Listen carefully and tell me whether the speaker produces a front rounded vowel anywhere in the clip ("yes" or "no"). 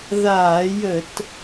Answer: no